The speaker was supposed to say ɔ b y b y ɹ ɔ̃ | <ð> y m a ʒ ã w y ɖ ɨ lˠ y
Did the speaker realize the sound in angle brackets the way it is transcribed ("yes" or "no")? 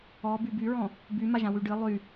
no